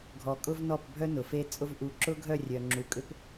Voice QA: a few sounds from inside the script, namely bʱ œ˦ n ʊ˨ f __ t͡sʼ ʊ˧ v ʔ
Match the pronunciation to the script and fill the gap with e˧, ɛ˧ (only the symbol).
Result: e˧